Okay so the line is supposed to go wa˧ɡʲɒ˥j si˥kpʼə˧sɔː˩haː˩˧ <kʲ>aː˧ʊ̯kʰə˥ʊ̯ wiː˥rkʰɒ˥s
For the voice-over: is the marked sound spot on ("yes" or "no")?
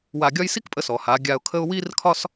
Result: no